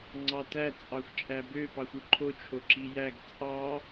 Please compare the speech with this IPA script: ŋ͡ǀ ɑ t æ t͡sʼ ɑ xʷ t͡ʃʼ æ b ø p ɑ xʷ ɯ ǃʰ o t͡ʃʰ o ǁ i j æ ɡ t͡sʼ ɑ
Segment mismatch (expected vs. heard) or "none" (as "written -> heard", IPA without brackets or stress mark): none